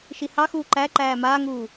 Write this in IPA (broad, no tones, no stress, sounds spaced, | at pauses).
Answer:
ʃ i h ɑ x uː ǃ æ ǃ æː m aː ŋ uː